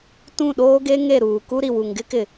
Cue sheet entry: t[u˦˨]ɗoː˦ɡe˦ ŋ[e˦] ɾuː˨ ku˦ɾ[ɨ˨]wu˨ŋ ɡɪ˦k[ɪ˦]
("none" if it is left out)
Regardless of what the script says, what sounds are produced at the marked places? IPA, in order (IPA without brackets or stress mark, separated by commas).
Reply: ũ˦˨, e˦˨, i˨, ɪ˨